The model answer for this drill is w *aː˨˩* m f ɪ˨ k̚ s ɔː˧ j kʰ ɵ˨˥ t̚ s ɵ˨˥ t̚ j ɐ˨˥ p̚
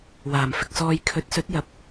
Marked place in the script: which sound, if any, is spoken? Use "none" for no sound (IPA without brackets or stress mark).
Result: aː˨˩